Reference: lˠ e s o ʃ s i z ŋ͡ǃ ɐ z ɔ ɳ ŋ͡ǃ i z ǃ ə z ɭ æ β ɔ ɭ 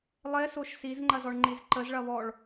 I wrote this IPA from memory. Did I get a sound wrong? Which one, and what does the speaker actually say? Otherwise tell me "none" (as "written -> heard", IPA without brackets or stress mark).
æ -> ɐ